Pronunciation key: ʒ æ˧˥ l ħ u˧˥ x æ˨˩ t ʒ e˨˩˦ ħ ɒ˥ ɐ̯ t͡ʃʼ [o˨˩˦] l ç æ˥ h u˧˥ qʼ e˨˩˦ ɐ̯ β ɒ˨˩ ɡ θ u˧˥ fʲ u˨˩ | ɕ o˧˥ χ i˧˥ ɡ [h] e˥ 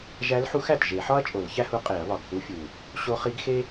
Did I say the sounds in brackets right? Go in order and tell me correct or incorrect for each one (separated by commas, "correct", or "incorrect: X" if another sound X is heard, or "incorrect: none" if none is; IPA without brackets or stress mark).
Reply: correct, incorrect: x